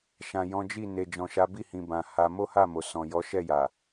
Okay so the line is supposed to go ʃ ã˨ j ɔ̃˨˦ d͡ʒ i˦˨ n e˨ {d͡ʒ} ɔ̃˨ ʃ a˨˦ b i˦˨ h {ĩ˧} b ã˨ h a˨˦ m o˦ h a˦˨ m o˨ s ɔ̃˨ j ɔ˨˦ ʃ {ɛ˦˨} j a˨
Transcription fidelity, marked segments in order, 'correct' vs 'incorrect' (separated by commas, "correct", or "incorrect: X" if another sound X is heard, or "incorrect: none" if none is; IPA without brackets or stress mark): correct, incorrect: ĩ˨, correct